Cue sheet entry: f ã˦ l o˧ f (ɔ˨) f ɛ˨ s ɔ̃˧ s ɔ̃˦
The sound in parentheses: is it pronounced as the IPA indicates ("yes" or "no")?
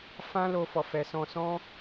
yes